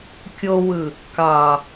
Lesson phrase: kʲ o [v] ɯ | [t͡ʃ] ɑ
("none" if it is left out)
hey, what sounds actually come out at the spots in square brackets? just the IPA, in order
w, k

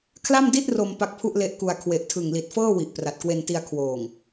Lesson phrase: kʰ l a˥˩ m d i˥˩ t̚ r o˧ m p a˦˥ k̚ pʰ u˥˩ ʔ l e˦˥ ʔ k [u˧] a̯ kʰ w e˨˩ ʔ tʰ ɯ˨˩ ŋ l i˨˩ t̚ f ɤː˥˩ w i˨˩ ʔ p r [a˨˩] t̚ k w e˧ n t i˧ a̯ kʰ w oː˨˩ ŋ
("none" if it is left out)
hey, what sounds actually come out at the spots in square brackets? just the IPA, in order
u˧, a˨˩

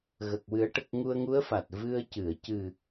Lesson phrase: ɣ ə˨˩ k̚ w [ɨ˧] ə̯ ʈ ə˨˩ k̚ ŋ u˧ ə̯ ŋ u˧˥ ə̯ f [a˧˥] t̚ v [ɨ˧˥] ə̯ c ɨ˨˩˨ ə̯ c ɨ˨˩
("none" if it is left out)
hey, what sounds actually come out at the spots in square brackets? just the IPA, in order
ɨ˨˩˦, a˨˩, ɨ˧

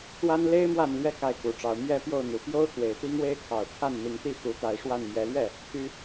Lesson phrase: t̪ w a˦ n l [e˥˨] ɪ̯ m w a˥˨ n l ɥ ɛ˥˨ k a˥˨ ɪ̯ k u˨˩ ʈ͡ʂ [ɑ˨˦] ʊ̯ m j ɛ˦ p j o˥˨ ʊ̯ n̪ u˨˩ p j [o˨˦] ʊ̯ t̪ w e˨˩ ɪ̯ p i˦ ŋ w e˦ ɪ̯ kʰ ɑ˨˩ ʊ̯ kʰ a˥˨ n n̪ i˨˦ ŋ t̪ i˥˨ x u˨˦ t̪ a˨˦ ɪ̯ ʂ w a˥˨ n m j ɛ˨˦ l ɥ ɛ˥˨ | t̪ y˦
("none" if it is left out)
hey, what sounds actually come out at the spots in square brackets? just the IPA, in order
e˦, ɑ˨˦, o˦

